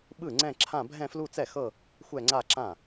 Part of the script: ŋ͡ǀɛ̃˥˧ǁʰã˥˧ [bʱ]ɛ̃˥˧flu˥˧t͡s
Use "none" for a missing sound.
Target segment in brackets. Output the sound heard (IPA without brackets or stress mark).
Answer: bʱ